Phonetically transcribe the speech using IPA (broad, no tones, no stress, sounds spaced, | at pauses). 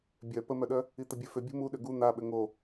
bʲ œ p ə m œ ɗ œ | i t̪ ə bʲ œ f ʏ bʲ ṳ m u ɗ ʏ ɡ u n̪ a ɓ ʏ ŋ o